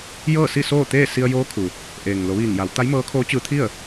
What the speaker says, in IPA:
j ɤː˥˨ s i˥˨ s oː˥˨ t̪ eː˥˨ s i˧ ə̯ j oː˧˥ kʰ u˩ | ʔ eː˩ ŋ l o˩˧ ʋ iː˧˩ ŋ j a˩˧ w t̪ a˧˥ j m ɤː˧˥ kʰ oː˧˥ t͡ɕ ɯː˧ t̪ʰ i˥˨ ə̯

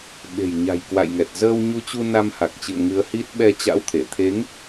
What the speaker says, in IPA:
ɓ e̤˨˩ j ɲ a̤˨˩ j k w a̰˧˨ j ŋ ɛ˨˩ t̚ z əː˧ w ɲ u˧ t͡ɕ u˧ n a˧ m h a˨˩ k̚ t͡ɕ ɨ̰˧˨ ə̯ ŋ ɨ˨˦ ə̯ h i˦˥ t̚ ɓ ɛ˧ t͡ɕ a̰˧˥ w t̪ʰ e˧˩ t̪ʰ e˨˦ ŋ

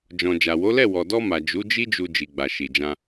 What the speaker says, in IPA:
d͡ʒ ɔ̃˨ d͡ʒ a˨ w o˨˦ l ɛ˦˨ w ɔ˨ d ɔ˧ m a˨ d͡ʒ u˨˦ d͡ʒ i˦ d͡ʒ u˧ d͡ʒ i˨ ɡ͡b a˨ ʃ i˨ d͡ʒ ã˧

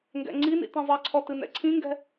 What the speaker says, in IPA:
ŋ ɡ ɛ̰ ŋ͡ǀ i n ḭ t ĩ zˤ i ǀʰ ɔ t ɨ n ɛ̰ ǀʰ ĩ ŋ ɡ ɛ̤

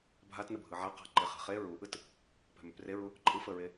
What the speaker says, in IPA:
bʱ a t n ə bʱ ɯ ʕ a q a̤ ǃ e χ ɛ̤ χ e ɹ u ʔ ɯ t | p ɛ̤ m ʏ p r e ɹ u | ǃʼ ɯ f ə ɹ e

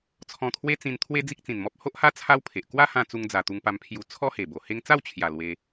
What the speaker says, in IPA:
t͡sʰ ɔ̃˧ t̪ʰ w e˦ t͡s ĩ˧ n t̪ʰ w e˦ d͡z i˦ k̚ t͡s ĩ˨˩ n m ɔ˦ p̚ h o˦ ʔ h a˦ t͡sʰ a˦ w pʰ e˨ ʔ k w a˦ h ã˧ t͡s u˧ ŋ d͡z a˨˩ t̪ u˧ ŋ p a˧ m pʰ j u˧ t͡sʰ ɔ˦ h e˨˩ b o˨˩ h e˧ ŋ t͡s a˥˧ w t͡ɕʰ j a˨˩ l w e˧

